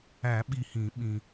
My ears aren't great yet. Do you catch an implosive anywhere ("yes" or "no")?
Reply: yes